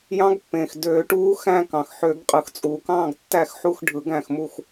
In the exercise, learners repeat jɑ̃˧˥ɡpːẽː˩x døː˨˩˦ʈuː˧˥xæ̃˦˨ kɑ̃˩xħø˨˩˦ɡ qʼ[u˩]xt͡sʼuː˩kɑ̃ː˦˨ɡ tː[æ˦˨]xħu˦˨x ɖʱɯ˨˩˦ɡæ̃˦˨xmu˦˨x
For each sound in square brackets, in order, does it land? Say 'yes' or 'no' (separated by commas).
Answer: no, yes